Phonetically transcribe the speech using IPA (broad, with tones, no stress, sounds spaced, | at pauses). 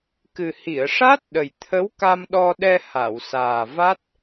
k ɨ˨˩ h i˨˩˨ ə̯ ʂ a˦˥ t̚ ɗ ə˨˩ j t̪ʰ ə˧˥ w k a˧ m ɗ ɔ˧ ɗ ɛ˧ h a˨˩˨ w s aː˨˩ v a˦˥ t̚